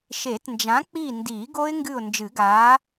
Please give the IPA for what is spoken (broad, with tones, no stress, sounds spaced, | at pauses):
ʃ e˨˩˦ t n d͡ʒ ã˨˥ k͡p i˦˨ n d iː˨˩˦ ɡ o˦˥ ɪ̯ ŋ ɡ ɨ˦˨ ʊ̯ n d͡ʒ ɨ˨˩˦ ɡ aː˨˥